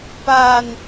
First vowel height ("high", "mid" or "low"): low